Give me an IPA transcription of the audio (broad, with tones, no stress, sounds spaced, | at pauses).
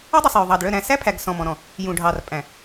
ɔ˦ dˤ ʉ˨ sˤ j ø˨ ðˤ ɑ˨ d ɭ œ˦˨ ɾ æ̃˨ s æ˦ pʰ æ˨ ɡ s ɔ̃˨ m ɔ̃˨ ɾ ɔ̃˨ | j ũ˨ ɖʱ ɑ˨ r pʼ æ̃˨